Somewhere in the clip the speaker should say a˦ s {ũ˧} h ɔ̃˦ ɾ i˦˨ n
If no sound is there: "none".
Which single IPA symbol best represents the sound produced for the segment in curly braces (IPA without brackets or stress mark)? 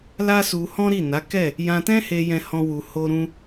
u˧